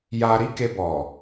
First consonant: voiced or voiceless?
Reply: voiced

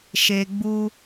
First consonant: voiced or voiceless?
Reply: voiceless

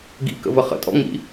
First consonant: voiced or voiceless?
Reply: voiced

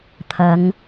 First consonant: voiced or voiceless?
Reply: voiceless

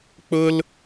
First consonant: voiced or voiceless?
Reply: voiceless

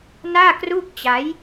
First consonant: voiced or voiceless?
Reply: voiced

